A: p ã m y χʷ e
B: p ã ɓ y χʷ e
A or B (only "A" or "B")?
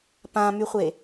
A